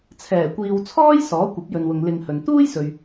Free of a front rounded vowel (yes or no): yes